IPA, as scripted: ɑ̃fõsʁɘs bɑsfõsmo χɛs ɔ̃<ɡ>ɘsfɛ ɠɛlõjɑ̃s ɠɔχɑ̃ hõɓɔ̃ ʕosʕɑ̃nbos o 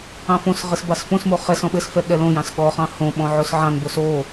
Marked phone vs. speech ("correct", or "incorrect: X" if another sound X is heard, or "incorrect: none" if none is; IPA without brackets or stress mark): incorrect: ɓ